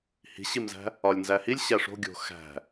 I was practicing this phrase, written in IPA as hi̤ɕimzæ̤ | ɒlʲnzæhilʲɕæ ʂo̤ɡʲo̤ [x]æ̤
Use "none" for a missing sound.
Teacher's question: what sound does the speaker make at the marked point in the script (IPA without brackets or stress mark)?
x